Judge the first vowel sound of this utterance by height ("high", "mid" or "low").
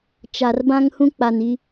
low